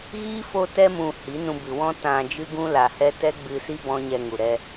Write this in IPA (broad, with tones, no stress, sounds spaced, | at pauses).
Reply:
ɣ iː˦ f o˧ t ɛ˧ m ũ˨ h i˨˦ n ũ˧ b ɨ˨ w ɔ̃˦ t ã˨ d͡ʒ ɨ˦ ɡ ũ˦ l a˨ h ɛ˦ t ɛ˦ ɡ͡b ɨ˧ s i˦ b ɔ̃˦ ɲ ɛ˧ ŋ u˨ ɾ ɛ˧